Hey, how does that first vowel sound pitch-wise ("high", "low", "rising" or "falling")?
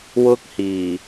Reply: high